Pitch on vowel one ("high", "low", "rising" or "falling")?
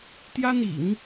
high